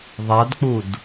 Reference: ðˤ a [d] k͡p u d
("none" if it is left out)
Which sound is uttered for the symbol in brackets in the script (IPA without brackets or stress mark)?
d